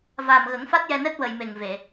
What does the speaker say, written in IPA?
vaː˨˩mɣə˨˩˦ŋ fa˦˥t̚jɛ˧nɛ˦˥t̚ wə˨˩jme˨˩ŋve˨˩˨

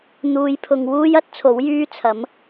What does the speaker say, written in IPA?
n̪uː˨˧jpʰʊ˨ŋ wuː˥jɐ˥t̚ t͡sʰo˨˥wjyː˥t͡sʰɐ˨˥m

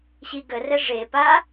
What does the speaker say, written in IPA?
ɕiɡərɛ ʐepa

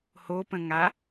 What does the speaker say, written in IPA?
hopə̃ŋa

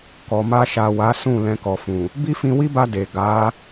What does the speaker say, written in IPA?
kɔ˨ma˧ʃa˨wa˨˦ sũ˦˨ lɛ̃˧kɔ˨fũ˨ | bi˦fĩ˧wi˦ba˧ de˨ ɡa˨˦

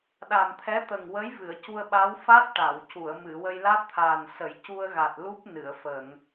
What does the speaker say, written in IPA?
ɗa˨˩mt̪ʰɛ˧˥t̪ə˨˩ŋwə˧˥j vɨ˨˩˨ə̯cu˧ə̯ɓa˧˥w fa˦˥t̚ ʈa˨˩˨wcu˨˩˨ə̯ mɨ˨˩˨wə˧j la˦˥t̚t̪ʰaː˨˩nsə˨˩˦j cu˧ə̯ɣa˨˩t̚ lu˦˥p̚nɨ˨˩˨ə̯fə˨˩˨ŋ

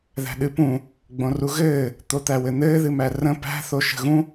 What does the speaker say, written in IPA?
ðæ̤ɗɨpũ | ɡ͡bõruɣɘː | t̪ot̪æwɘn̪ɘː ðɨmærə̃ pæ̤ θoʃə̤ɣũ

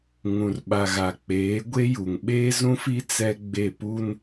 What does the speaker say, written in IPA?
ŋũ˨rɓa˨ɣa˨ k͡peː˨˦ ɡʷe˦ju˨ŋ ɓeː˦zũ˦fi˦ t͡sɛ˦ ɡ͡be˦˨pu˦n

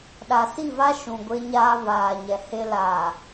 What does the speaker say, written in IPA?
ɗa˨si˦˨va˦ ʃũ˨ɡʷe˦ɲaː˦ βaː˨ɲɛ˨he˦ laː˨

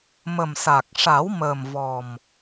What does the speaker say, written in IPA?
mə˨˩msa˨˩k̚ ʂa˨˩˦wməː˨˩mvɔ˨˩m

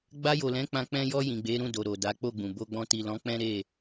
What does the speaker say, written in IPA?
ɡ͡ba˧jo˨lɛ̃˨˦ k͡pã˧ k͡pɛ̃˧ jɔ˧ jĩ˨ɡ͡be˨˦ɾũ˦˨do˨ ɾo˨da˨˦ k͡po˦˨ɡ͡bũ˨ bo˧ ɡ͡bɔ̃˧ti˨lɔ̃˨˦ k͡pɛ̃˦ɾe˦˨

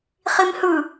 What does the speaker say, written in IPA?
χimhɯ

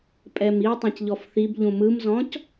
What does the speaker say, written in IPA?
pʼɛmi tˤẽcʎɔfθib ʎũmɯmzɔ̃c

